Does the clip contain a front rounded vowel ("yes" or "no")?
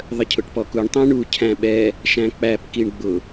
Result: no